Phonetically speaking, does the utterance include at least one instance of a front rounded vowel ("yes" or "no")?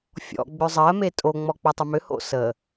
yes